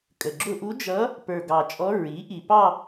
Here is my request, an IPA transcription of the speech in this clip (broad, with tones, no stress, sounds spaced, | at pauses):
kʼ ə˨˩ ɡ͡ǁ ʊ˥˧ ʔ u˧˥ d͡ʒ ʌ˧˥ | p ə˞˨˩ ɡ ɑ˨˩ t͡ʃʼ ɔ˧˥ ɹ i˩˥ ʔ i˨˩ p ɑ˥˧